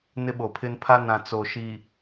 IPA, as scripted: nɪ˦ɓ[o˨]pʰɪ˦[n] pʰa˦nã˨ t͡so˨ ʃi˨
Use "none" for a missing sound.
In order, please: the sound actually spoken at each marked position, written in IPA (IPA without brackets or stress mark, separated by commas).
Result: o˨, n